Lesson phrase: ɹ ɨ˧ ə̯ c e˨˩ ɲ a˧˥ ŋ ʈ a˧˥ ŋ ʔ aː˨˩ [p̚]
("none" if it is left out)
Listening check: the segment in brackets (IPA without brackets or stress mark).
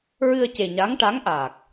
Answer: k̚